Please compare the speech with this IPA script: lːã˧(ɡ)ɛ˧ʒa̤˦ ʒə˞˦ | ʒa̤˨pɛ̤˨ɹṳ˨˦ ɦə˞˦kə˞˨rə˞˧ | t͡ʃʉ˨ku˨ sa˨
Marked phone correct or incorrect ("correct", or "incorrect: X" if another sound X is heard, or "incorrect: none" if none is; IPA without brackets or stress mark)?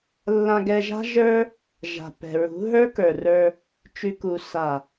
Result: correct